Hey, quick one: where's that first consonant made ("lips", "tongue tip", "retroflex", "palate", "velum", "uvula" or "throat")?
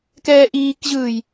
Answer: velum